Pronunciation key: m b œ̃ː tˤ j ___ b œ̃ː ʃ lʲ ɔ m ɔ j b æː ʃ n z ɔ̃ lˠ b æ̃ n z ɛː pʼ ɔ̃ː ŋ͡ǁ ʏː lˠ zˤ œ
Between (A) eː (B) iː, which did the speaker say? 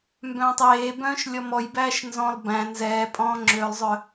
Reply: A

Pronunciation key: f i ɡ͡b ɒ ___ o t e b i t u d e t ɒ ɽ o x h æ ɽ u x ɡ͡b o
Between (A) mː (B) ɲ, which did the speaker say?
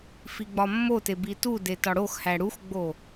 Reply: A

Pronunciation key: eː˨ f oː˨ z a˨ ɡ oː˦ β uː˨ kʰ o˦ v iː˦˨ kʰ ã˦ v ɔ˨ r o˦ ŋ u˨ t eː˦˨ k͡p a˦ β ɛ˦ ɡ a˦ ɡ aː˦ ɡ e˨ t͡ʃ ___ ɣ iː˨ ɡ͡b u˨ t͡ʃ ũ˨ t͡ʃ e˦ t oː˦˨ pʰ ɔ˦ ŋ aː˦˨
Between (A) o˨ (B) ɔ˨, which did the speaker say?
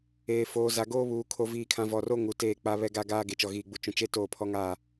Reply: B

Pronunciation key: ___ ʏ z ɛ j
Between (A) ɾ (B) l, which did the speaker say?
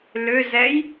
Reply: B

